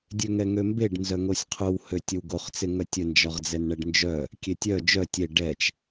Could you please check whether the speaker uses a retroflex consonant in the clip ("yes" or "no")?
yes